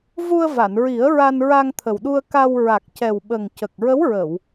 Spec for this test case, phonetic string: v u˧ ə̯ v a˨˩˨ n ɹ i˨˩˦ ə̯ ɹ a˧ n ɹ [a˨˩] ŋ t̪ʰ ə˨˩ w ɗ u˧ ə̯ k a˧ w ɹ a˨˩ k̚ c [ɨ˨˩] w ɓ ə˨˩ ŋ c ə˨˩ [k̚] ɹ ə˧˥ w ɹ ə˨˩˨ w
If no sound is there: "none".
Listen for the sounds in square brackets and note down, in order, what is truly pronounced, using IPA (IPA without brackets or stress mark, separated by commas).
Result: a˧, ɛ˨˩, k̚